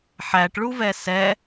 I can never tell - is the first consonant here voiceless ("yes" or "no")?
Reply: yes